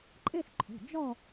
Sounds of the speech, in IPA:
ǃʼe˥˧sǃʰo̤˩˧˩d͡ʒɔ˥˧

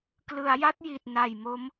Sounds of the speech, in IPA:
klɯ˩˦a̯ja˦˥t̚ ji˨˩t̚na˨˩j mo˦˥m

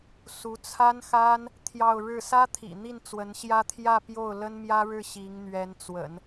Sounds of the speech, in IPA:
su˧˥t͡sʰa˥nxa˥n | t̪ʰjɑ˥˧ʊ̯ɻɻ̩˥˩ sä˥t̪ʰḭ˨˩ n̪i˥˩nt͡swə˧˥nɕjä˥t̪ʰjä˥˧ pjo˥˩ʊ̯lə˥nmjä˥ ɻɻ̩˥˩ ɕi˧˥ŋn̪ɥɛ˧˥nt͡swə̰˨˩˦n

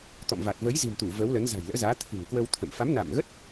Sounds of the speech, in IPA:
t̪ɔ̰˧˨mva˨˩t̚ və˨˦jzi̤˨˩mt̪u˧˩ və˨˦wlə˨˦n za̤˨˩jlə̰ː˧˥zaː˨˦ t̪ʰɨ̤˨˩ŋkwə˧wt̪ʰə̰˧˨m fa˨˦mna̰˧˨mɣə˦˥t̚

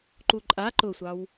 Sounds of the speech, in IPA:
ǃuǃʼa ǃʊsʷɑw

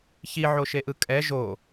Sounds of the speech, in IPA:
çiʕoʃeʔɯ kʼɛ ʒo

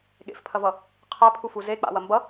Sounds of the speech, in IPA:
ɠḛfpʰɐvʌ | qʰæpʰufu ze k͡pa̰wɐ mbʌ

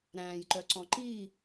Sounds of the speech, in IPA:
ɾæ̃ːjǃœǀɔ̃ ǃiː

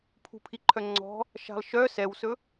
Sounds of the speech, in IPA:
pʰṳpʰiǃʰœŋ͡ǀɔ̤ | ʃa̤lˠʃœ sɛwsɵ

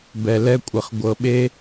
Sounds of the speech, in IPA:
bɛ˧lɛ˦kʷʼɘ˧χ ɡʷɤ˧ɓe˦

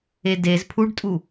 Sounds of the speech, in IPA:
edez pʰuɖtʼu

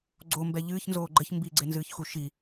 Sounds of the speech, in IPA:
ɡ͡ǀombɛ ʎɨːçnzoː ɡ͡ǃɘç mbiɡ͡ǀenzɨːçxu ʃi

